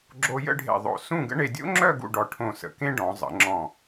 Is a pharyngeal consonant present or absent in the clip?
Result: absent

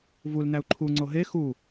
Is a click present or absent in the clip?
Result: present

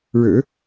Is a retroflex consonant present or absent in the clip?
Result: present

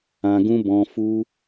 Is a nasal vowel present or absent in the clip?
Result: present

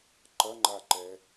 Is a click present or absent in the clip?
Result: present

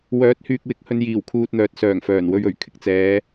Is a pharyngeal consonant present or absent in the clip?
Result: absent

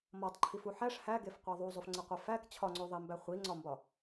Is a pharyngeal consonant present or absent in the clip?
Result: present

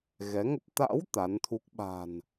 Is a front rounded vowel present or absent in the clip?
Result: absent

